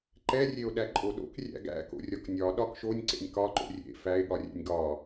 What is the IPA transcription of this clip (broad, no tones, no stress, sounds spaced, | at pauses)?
ǃ ɛ rʲ e o̯ ɗ æ ǃʼ o ɗ o̰ k rʲ æ̰ ɡ æ̰ k o̰ rʲ ɒ k nʲ ɒ ɗ ɒ k ʃ o nʲ ǀ ḛ nʲ k ɒ ǃ o̰ rʲ ḛ f æ e̯ ɠ ɒ rʲ ɛ̰ nʲ ɡ ɒ